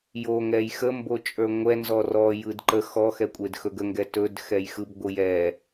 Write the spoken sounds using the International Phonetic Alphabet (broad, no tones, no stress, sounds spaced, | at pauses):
j o ŋ ɛ j x ə m b o t͡ʃʼ ə˞ ŋʷ ɛ n z ɔ r ɔ j ɯ d ǃ ə x ɔ x ɛ kʷʼ e d x ɵ ɡ ə ŋ ɡ ɛ t ɵ d x ɛ j x ɯ b ɡʷ ɯ j ɛ